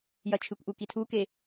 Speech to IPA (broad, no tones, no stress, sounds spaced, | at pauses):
j ɐ t͡ʃʰ ɨ kʷ ʔ u k i tʰ u k e